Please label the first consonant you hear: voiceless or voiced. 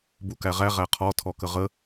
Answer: voiced